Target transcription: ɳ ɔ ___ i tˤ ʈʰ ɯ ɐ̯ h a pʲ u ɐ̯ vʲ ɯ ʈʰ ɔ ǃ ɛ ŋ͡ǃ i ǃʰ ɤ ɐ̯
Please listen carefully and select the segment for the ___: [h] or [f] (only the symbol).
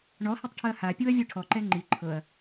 h